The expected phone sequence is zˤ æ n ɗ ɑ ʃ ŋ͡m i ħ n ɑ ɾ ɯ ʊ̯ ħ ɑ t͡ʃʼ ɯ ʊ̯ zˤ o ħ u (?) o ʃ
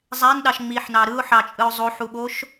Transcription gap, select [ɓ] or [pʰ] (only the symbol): ɓ